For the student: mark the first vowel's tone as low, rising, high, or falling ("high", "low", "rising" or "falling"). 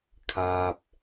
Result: low